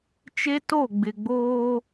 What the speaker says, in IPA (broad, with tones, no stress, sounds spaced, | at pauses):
t͡ʃ e˦ t o˦˨ ɡ͡b ɪ˨ ɡ͡b oː˦